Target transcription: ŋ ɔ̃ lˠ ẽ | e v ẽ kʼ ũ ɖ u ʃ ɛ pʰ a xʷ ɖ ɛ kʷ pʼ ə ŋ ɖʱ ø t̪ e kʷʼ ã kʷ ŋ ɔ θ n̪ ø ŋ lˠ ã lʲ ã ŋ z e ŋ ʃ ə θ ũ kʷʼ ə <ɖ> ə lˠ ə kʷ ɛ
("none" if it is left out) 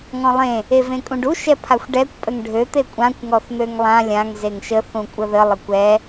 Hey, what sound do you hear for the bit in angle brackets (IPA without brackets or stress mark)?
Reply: ð